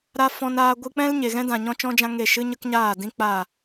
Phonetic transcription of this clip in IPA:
ɾ a˧ f ɔ̃˧ n aː˧ ɡʷ ɨ˧ k͡p ɛ̃˦ l ɲ e˨ ɣ ɛ̃˦ d ã˨ ɲ ɔ̃˦ t͡ʃ ɔ̃˦ d͡ʒ ã˦ ŋ e˦˨ ʃ ɨ˦ ɲ ə˦ k ɲ aː˦˨ d ĩ˦ k͡p a˦˨

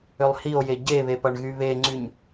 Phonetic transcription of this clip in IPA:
ø lˠ h i o̯ j e ɟ e β e p ʌ ɳ ɣ y β e ŋ͡ǀ y ɲ

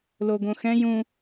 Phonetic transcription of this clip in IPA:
l o ɡ õ x ɛ̃ j ũ

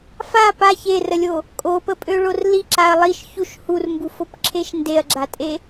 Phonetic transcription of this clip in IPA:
f a p a ç e r ə lʲ o | kʼ o p ə pʼ ø ɭ o r l i ǁ a ɐ̯ lˠ i ʃ ç u ʃ h u r m b u f o p ǁʰ e ʃ n d e ɐ̯ ɡ͡ǁ a tʼ e

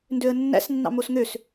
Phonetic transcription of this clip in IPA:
n d ø ə̯ nː æ̰ s nː ɑ̰ m o s ŋ ø s

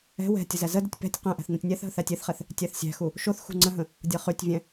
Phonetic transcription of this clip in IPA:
ɛ̤ w ɛ̤ tʲ ə z æ z ə d ə tʲ p ɛ̤ tʲ q ɛ̃ ʔ æ̤ θ n ɛ̃ tʲ nʲ æ θ ɦ ə θ æ tʲ e θ χ ɛ θ | tʲ æ θ sʲ æ̤ x u | ʃ o θ x ṳ ŋ͡ǀ ə̃ ɦ ə̃ | dʲ ɤ χ y tʲ vʲ æ̃

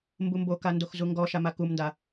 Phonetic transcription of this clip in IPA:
m b u m b o k a n d o x z u ŋ ɡ ɔ ʃ a m a k u m n d a

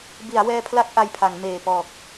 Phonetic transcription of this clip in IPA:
b i˩˦ a̯ w ɛː˧ pʰ l a˦˥ k̚ ʔ a˧ j pʰ a˩˦ ŋ m eː˨˩ p ɔː˨˩ k̚

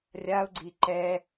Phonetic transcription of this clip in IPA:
rʲ a ʊ̯ ɡ͡ǀ i ǃ ɛ

